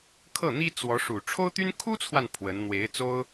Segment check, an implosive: absent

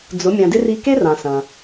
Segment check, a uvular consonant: absent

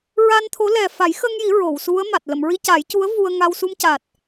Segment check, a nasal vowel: absent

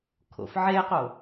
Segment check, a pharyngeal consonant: present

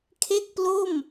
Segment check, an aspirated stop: present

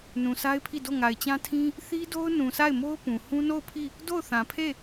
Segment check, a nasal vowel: present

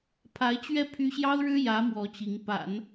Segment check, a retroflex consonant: present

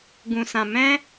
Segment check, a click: absent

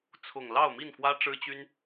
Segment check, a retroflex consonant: present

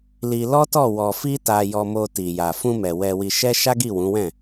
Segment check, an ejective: absent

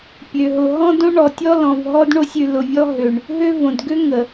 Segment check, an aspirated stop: absent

